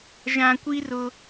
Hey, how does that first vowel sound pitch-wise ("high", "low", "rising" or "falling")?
low